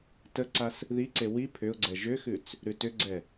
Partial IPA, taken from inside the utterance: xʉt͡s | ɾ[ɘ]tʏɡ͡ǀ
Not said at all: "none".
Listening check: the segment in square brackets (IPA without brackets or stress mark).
ʉ